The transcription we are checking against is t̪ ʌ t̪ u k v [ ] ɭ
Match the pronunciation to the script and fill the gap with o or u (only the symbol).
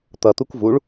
u